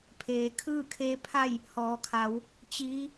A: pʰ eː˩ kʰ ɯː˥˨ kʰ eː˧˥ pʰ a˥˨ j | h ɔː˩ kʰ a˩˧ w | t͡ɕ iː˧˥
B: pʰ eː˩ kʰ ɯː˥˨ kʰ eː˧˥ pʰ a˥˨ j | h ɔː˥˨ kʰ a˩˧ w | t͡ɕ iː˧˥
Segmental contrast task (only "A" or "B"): A